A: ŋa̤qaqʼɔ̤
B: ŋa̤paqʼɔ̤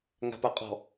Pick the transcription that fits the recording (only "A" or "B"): B